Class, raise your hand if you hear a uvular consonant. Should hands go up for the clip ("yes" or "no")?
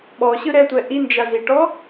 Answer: no